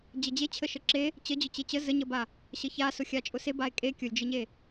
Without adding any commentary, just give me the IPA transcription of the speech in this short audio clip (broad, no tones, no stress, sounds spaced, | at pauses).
d͡ʑ ə d͡ʑ e t͡ɕʰ ə ʃ ə ǁ e | t͡ɕ ə d͡ʑ ʊ t͡ɕ e t͡ɕ ə z ə ɲ ə b a | ɕ ə ç a s ʊ xʲ a t͡ʃʼ ʊ s e b a e̯ kʼ e kʲ ʊ lʲ d͡ʒ ə ɲ e